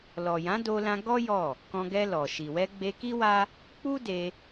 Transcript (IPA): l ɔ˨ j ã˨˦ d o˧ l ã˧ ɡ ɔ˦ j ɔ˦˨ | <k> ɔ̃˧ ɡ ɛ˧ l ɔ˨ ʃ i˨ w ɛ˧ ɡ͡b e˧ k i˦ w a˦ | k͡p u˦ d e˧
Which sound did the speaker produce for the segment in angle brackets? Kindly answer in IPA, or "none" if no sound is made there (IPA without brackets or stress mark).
k